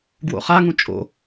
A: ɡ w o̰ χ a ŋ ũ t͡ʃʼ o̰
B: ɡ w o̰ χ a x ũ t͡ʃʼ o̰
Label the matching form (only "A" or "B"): A